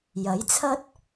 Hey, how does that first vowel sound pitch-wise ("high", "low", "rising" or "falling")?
rising